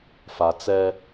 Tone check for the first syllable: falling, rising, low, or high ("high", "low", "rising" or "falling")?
low